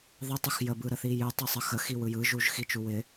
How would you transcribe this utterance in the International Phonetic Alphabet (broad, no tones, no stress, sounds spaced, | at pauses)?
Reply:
ðˤ ə tˤ u x j ə b ɯ ɾ ə θ i j ɯ tˤ ɤ sˤ ə x ə x i w ɯ j ɯ ʒ u ʒ x i t͡ʃ u w ɪ